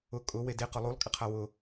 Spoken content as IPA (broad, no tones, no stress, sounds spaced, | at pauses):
ʊ kʼ ʊ w e d e q ʊ lˠ u lˠ kʼ ɪ qʰ a w ʊ